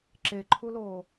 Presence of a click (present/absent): present